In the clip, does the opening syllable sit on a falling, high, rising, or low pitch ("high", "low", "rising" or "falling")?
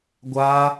high